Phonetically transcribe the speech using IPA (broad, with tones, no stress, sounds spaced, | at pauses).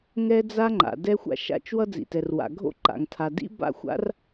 ŋ ɛ˥ d͡z a˥ ŋ͡ǃ a̰˩ d ɛ˥ xʷ a̰˥ ʃ a̰˥ t͡ʃ w ʌ˥ d͡z ḭ˩ t ɛ˩ r w a̰˩ ɡʱ o̰˥ ǃ a̰˩ ŋ tʰ a˩ d ḭ˥ b a̰˥ xʷ a̰˥ r